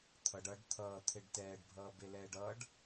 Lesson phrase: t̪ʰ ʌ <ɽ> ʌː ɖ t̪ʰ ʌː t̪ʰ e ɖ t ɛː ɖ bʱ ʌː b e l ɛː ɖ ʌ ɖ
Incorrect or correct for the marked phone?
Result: incorrect: ɖ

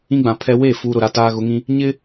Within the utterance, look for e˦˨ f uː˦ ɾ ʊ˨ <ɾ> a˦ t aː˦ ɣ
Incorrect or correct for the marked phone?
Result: correct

